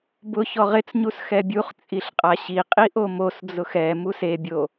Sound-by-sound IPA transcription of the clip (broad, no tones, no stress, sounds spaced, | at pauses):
b ʊ ç ɔ ʁ ɪ t͡s ɲ u s x ɛ bʲ u χ t͡sʼ i ɬ qʼ a ɕ i qʼ i ʔ o m o s d͡z ʊ x ɛ m u s e bʲ o